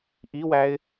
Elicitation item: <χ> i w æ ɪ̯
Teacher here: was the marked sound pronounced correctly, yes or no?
no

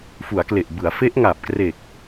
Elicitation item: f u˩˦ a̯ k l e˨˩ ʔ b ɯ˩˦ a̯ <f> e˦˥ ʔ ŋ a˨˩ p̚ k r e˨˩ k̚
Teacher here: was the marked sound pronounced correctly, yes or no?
yes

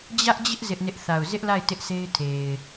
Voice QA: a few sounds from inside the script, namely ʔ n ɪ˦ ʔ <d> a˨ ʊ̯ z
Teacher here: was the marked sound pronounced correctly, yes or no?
no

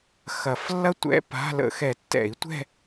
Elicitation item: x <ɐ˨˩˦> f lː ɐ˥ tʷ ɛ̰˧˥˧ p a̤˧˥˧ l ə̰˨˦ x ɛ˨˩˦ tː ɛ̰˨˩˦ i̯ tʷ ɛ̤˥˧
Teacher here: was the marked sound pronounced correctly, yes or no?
yes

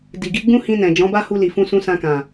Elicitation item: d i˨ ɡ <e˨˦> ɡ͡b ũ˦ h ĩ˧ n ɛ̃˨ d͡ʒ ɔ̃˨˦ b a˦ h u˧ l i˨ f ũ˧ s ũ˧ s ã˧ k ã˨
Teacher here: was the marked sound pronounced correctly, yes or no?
no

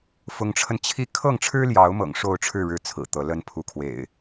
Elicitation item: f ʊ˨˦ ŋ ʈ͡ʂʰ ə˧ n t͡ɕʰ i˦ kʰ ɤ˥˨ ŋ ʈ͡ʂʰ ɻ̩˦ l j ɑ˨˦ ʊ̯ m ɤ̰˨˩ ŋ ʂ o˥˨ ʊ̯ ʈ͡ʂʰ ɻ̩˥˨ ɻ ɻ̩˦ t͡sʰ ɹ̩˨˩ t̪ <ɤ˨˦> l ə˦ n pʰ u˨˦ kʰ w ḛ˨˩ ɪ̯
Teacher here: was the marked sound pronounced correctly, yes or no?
yes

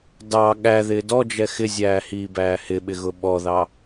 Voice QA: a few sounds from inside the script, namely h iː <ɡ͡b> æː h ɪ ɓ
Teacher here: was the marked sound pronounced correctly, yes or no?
no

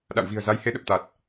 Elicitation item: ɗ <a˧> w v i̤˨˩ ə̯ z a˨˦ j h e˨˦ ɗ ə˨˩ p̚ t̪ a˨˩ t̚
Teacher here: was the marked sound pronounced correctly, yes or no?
no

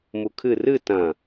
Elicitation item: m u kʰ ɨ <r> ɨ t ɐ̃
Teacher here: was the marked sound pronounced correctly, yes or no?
yes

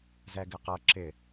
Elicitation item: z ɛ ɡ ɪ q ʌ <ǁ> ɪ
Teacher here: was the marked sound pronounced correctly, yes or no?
yes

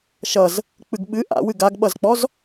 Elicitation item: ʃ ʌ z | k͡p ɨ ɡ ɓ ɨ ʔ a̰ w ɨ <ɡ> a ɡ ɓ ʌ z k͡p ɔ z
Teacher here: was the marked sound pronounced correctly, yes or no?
yes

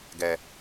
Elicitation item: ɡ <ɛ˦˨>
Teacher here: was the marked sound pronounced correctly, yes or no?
no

